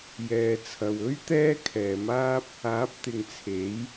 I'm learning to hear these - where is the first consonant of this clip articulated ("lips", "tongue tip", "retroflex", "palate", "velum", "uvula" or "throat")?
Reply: palate